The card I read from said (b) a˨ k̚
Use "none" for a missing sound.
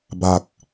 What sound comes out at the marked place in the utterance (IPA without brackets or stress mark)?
b